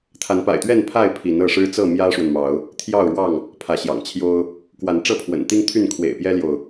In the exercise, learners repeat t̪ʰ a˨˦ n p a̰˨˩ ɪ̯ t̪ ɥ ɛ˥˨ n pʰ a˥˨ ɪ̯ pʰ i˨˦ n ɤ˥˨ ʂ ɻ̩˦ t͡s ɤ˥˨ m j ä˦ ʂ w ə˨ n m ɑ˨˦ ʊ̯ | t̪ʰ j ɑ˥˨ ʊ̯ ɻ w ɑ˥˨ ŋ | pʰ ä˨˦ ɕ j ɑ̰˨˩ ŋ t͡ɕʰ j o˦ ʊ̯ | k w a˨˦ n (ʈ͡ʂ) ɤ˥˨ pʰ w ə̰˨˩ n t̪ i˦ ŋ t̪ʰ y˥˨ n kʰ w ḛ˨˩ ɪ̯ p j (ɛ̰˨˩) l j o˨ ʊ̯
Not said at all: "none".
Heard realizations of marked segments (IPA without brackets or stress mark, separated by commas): ʈ͡ʂ, ɛ˦